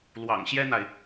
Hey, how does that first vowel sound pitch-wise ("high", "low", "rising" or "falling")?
low